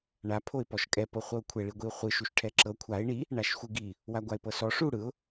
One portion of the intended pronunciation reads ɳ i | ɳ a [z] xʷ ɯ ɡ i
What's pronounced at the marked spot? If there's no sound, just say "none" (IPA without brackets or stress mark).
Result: ʃ